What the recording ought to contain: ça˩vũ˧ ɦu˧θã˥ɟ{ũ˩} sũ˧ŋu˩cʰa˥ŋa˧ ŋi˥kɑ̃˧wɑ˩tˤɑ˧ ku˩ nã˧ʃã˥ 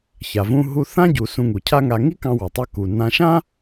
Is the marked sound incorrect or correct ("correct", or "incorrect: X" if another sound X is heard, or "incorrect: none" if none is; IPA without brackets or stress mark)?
incorrect: u˩